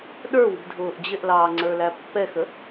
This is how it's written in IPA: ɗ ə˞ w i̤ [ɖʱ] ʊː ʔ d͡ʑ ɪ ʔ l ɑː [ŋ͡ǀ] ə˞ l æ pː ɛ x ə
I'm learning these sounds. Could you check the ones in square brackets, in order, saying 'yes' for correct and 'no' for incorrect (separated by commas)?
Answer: no, yes